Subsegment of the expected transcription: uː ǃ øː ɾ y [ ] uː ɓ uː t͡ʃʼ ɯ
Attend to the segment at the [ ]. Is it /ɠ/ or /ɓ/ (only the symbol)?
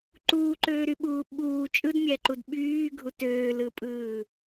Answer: ɓ